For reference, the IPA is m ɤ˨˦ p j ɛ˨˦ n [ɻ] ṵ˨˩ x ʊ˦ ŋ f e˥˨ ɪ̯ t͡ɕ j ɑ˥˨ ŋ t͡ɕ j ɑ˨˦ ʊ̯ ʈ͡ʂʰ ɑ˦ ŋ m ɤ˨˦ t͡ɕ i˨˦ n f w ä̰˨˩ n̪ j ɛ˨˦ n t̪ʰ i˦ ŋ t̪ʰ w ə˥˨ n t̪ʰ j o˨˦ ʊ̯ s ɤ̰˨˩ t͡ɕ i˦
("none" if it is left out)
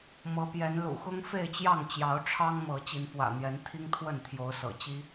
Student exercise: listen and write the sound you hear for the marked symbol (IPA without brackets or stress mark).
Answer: l